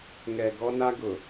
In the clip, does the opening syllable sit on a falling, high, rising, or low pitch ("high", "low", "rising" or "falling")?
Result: low